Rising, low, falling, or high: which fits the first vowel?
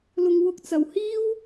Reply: low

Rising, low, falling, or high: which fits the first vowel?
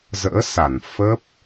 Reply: rising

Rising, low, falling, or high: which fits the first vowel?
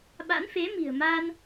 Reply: rising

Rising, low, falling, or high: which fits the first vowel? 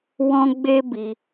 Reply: high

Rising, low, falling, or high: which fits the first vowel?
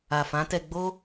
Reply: low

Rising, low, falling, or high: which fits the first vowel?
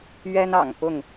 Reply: high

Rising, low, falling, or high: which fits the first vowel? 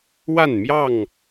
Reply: falling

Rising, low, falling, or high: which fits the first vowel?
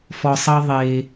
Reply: low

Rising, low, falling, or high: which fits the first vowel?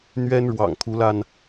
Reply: high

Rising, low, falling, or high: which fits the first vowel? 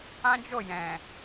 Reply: high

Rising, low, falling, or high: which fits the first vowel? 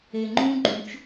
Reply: low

